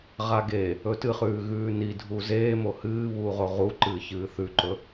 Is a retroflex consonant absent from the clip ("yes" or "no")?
yes